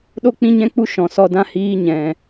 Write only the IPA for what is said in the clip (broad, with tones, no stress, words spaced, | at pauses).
ɗo˦k͡pĩ˦ɲɛ̃˦k͡pu˦ ʃɔ̃˨sɔ˧dã˦ hiː˦ ɲɛ̃˨